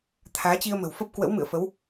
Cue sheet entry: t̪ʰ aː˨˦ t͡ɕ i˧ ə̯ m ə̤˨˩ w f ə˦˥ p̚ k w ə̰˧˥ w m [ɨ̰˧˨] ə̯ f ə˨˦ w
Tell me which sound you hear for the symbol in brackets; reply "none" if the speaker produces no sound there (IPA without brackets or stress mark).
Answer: ɨ̰˧˨